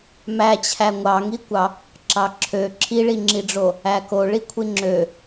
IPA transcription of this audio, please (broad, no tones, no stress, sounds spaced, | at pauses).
m æ t͡ɕʰ æ ŋʷ ɑ ŋ i kʷ ɑ | ǁ ɑ ǁʰ ø ǁʰ i ɭ i ŋ͡ǁ i ɖ͡ʐ o | æ k o ɭ i kʷʰ i ŋ͡ǁ ø